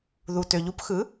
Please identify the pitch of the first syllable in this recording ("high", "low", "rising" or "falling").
low